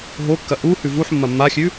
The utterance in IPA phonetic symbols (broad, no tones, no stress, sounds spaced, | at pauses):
ɦ o kː ɐ ʔ u h ʉ v u ħ mː ɐ mː a xʲ ʉ